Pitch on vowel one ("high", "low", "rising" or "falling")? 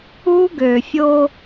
high